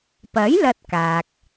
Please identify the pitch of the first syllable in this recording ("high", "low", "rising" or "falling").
rising